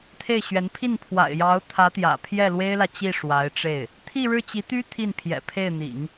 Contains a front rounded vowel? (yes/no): yes